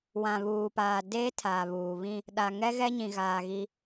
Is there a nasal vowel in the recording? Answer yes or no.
yes